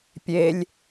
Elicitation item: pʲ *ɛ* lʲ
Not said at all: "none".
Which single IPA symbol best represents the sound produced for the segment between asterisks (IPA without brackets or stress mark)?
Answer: e